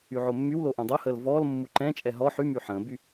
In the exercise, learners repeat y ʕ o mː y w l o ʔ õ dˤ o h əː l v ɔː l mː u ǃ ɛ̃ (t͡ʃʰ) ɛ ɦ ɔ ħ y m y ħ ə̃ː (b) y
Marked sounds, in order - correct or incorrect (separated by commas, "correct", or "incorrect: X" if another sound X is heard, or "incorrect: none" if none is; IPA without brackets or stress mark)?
incorrect: t͡ʃʼ, correct